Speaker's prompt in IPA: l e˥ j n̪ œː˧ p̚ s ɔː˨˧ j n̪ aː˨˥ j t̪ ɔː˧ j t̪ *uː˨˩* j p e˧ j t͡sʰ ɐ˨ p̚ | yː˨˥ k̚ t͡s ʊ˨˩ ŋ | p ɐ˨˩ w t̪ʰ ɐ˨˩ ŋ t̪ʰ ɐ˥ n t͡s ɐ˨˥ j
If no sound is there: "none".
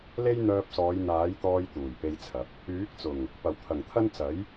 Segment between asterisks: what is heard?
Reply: uː˨˩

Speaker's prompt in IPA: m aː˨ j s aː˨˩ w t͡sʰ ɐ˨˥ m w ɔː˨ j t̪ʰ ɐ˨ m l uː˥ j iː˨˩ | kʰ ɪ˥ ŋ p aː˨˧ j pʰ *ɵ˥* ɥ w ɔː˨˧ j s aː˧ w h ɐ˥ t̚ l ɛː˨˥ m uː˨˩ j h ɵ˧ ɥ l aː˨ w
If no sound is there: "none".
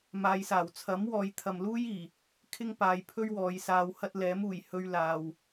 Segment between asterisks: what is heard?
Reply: ɵ˥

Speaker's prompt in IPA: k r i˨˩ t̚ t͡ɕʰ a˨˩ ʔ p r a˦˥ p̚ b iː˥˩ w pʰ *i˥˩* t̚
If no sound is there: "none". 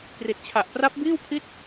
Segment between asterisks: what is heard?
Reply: i˦˥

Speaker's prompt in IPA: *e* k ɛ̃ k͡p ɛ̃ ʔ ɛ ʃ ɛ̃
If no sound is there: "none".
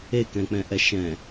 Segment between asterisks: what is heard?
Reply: e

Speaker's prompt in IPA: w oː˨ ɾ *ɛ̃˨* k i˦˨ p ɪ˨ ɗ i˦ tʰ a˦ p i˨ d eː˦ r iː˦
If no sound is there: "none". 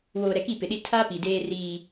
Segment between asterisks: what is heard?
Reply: ɛ˨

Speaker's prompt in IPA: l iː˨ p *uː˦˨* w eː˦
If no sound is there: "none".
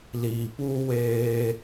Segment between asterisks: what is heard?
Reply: uː˦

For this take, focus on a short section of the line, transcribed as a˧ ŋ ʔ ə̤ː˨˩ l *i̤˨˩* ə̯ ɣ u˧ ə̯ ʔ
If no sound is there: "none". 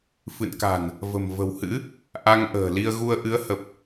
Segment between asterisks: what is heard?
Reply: i˧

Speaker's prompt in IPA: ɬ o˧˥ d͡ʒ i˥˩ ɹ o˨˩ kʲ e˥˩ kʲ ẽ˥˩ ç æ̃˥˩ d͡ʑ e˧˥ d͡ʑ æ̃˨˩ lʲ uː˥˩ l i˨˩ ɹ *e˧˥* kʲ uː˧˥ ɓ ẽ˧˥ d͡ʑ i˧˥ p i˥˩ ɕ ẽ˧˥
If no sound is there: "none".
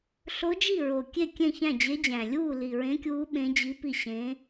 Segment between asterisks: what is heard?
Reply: ẽ˧˥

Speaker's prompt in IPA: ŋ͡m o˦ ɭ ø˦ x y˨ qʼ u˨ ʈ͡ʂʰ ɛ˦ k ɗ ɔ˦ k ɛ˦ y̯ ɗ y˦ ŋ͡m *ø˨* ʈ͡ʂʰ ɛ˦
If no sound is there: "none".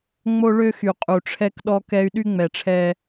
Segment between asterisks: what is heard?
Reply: ɛ˨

